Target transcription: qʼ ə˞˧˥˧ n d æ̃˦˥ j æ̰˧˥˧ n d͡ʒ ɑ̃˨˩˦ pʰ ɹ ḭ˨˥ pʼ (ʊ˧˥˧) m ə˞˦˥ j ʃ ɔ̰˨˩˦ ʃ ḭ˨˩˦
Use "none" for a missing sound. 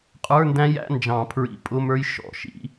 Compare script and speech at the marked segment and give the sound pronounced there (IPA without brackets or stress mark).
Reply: ʊ˧˥˧